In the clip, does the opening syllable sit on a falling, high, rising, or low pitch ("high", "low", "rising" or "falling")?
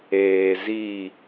low